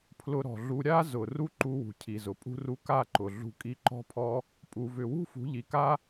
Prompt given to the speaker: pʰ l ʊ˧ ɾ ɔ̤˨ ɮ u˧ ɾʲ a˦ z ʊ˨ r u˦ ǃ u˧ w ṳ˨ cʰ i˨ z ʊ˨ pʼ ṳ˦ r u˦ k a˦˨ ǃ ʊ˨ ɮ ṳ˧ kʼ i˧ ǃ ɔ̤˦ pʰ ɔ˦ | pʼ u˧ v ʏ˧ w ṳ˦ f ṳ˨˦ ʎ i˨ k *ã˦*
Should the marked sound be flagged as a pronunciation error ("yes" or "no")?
yes